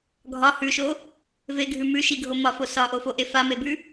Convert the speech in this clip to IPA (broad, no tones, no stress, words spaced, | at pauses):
ɡʱɒ hʉʃo | veɡʱʉ mʉʃiɡʱo mɒfo sɒʔofoʔe famebʉ